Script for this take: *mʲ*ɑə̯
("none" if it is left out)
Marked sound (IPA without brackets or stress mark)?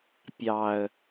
pʲ